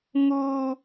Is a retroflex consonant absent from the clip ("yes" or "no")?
yes